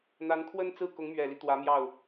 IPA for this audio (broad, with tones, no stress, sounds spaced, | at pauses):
n̪ a˧˥ n kʰ w ə˥ n t͡s ɹ̩˥˩ k ʊ˧˥ ŋ m ɥ ɛ˨˩ l i˦ t̪ w ä˧˥ m j ɑ˥˩ ʊ̯